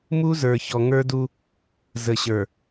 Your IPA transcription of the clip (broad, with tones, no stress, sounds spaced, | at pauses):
m u˦ z ə˞˨ ç ɔ˨ ŋ ə˞˦ d u˦ | z ə˨ ɕ ə˞˨